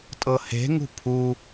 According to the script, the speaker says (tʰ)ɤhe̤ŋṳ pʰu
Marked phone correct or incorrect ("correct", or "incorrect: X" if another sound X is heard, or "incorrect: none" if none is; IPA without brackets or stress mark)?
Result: incorrect: tʼ